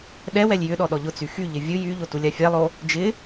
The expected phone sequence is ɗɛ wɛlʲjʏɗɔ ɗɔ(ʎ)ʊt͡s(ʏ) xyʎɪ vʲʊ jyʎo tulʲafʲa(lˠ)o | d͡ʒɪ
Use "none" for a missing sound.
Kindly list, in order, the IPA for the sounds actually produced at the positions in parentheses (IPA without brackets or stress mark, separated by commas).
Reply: ʎ, y, lˠ